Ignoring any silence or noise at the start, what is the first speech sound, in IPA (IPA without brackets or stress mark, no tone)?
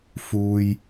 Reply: f